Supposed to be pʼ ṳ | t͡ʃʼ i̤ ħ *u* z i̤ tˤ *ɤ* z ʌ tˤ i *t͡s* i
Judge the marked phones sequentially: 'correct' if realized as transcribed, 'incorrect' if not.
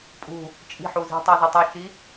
correct, correct, incorrect: ʃ

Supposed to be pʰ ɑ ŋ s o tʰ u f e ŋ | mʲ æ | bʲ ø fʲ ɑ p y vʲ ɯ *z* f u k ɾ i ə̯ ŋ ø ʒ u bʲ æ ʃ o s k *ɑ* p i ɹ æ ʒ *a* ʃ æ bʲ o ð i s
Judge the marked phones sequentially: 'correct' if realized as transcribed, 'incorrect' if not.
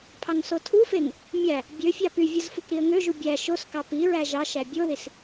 correct, correct, incorrect: ɑ

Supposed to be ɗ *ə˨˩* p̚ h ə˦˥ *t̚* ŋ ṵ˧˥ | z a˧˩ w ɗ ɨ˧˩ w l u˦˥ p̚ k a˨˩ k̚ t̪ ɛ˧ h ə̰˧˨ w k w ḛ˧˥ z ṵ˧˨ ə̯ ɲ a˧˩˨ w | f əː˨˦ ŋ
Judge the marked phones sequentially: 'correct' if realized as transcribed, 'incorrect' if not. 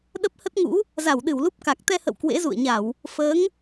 incorrect: ə˦˥, correct

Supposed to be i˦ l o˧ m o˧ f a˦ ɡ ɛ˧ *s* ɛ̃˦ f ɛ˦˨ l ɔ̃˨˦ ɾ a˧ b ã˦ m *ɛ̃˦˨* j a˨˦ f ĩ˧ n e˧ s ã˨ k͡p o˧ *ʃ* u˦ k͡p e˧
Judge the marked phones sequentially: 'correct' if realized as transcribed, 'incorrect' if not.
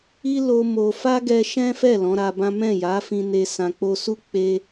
incorrect: ʃ, correct, incorrect: s

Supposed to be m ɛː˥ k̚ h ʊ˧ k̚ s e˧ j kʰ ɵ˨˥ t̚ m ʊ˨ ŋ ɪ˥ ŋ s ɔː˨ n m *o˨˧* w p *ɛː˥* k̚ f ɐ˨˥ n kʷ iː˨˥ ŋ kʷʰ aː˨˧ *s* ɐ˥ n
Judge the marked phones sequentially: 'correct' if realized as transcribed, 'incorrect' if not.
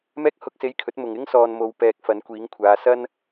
correct, incorrect: ɛː˨, correct

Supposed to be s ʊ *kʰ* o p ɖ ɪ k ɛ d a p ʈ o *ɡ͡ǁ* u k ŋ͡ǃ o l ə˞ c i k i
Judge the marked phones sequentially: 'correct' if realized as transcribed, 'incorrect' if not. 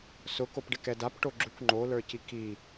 incorrect: k, correct

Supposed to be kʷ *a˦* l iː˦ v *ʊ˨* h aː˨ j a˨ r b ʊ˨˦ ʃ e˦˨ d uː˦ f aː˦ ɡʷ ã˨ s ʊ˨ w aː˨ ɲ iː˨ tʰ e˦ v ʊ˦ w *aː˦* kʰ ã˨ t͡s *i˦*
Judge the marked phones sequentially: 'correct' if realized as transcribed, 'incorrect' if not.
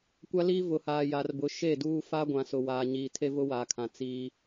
correct, correct, incorrect: aː˨, correct

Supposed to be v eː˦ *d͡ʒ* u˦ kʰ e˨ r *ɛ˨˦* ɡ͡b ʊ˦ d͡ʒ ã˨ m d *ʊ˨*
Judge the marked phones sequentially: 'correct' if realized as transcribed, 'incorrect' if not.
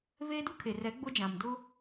incorrect: d, correct, incorrect: ʊ˦

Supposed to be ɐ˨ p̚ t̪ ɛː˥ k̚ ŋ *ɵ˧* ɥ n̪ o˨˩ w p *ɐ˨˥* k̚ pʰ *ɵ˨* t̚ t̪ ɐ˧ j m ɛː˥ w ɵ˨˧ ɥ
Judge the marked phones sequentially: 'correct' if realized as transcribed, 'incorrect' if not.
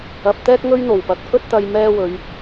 incorrect: ɵ˥, correct, incorrect: ɵ˥

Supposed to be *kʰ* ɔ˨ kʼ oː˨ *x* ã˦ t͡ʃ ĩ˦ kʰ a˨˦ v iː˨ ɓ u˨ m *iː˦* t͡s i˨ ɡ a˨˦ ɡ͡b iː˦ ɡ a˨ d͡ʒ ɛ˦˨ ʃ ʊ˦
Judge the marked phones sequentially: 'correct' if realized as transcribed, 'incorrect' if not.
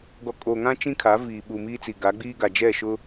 incorrect: ɡ, incorrect: ŋ, correct

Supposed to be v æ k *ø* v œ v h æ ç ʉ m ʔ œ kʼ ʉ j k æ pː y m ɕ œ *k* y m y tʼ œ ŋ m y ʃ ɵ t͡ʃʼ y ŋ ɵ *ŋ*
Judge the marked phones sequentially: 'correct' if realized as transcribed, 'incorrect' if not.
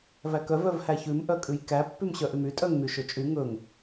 incorrect: œ, incorrect: ʔ, correct

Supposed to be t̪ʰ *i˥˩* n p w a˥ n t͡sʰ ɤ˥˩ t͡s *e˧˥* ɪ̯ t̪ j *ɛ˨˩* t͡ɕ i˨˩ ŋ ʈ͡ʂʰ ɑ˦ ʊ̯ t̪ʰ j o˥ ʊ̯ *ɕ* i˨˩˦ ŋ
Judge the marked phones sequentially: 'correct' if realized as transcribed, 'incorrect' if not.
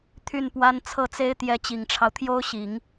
incorrect: y˥˩, incorrect: e˥, incorrect: ɛ˧˥, correct

